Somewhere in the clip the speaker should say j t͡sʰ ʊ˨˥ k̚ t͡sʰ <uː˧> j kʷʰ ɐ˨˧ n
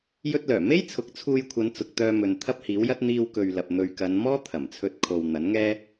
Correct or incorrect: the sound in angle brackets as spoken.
correct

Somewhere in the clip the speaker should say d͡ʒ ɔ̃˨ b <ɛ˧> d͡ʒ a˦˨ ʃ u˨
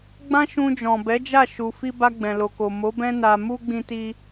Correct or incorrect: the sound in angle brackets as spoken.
incorrect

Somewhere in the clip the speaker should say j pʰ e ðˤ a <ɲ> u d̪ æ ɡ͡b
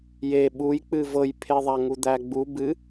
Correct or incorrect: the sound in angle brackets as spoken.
incorrect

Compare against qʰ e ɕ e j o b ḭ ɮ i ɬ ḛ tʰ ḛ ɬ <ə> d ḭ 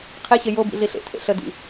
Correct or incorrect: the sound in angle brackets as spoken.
correct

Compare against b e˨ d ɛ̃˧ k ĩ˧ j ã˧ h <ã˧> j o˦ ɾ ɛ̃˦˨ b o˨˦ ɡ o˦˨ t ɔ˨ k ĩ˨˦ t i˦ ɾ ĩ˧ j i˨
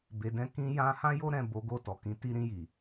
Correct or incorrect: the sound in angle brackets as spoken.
incorrect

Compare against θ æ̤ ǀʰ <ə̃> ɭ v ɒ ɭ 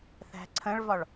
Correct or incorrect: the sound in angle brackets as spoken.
correct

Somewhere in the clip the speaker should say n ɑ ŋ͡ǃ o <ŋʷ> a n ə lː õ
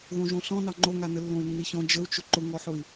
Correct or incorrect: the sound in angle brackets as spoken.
incorrect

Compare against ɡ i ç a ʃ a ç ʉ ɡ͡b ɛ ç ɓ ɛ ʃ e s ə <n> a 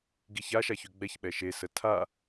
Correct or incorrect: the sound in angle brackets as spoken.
incorrect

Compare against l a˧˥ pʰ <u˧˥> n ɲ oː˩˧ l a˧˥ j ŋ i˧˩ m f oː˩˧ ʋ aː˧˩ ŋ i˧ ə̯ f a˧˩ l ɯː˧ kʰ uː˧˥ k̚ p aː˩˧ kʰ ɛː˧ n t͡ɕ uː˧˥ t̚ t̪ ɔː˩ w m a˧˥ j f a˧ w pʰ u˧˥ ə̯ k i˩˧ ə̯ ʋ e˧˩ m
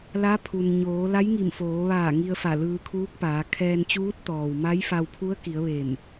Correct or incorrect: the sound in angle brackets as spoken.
incorrect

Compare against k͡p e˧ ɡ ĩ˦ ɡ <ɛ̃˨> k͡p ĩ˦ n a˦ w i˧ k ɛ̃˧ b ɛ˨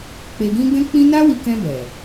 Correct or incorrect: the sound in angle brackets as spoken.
incorrect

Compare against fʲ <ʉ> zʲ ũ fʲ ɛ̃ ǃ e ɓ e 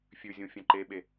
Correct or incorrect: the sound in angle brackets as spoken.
correct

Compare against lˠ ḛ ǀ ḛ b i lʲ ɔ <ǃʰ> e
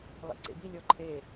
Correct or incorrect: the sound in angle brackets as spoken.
correct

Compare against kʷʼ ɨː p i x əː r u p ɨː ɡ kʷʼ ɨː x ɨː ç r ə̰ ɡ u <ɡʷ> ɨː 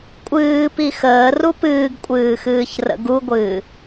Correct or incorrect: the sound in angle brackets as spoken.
correct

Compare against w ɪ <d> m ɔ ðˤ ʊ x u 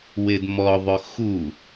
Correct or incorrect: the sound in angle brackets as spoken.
correct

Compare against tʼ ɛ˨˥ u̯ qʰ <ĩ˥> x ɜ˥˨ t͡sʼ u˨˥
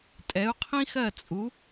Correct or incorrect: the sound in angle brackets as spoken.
correct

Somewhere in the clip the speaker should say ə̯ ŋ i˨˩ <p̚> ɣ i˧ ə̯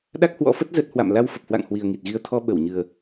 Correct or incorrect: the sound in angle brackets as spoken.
incorrect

